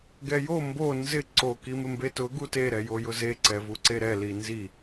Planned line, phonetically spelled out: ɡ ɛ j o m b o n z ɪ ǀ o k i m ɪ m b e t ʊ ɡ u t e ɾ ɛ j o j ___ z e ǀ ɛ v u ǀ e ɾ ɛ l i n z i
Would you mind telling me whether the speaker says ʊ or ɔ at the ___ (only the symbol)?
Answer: ʊ